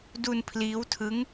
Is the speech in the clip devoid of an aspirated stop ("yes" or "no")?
no